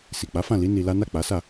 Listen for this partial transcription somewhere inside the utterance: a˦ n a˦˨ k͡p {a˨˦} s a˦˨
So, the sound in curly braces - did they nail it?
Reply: yes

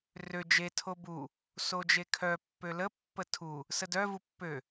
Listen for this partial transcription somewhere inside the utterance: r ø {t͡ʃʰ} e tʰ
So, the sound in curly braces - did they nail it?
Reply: no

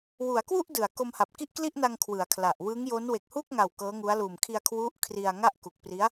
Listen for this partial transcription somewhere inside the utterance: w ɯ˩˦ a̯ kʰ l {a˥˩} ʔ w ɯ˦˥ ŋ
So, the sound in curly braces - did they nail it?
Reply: no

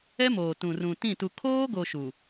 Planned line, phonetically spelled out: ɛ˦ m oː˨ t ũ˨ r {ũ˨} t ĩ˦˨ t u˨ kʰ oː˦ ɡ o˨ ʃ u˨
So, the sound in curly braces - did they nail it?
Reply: yes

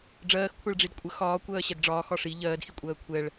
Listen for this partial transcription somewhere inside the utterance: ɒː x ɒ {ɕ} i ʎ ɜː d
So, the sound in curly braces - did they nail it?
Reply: no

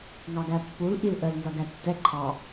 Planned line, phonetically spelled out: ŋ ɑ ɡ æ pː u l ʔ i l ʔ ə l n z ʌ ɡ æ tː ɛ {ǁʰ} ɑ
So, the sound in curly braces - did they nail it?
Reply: no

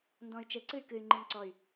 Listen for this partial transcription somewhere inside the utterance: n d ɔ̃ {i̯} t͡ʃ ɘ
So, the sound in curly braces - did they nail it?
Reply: no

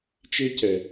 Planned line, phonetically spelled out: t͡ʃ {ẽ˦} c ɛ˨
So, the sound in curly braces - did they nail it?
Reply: no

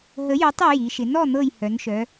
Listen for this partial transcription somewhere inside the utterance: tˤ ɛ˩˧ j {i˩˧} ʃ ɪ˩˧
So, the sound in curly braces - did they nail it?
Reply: yes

